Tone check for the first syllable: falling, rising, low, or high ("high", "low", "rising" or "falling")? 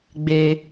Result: low